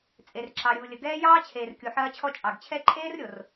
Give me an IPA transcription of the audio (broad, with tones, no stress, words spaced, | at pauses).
t͡sʼe˨rǁɑ˨ɾʲuː˨lʲə˨ ɡɛː˦jɑː˦t͡ɕʰeː˨r kʲu˨ħɐː˧t͡ɕʰɔ˧ t͡ʃʼɑ˨ɡ t͡ɕʰɛ˦ ǃʼeː˦rɾʲo˨r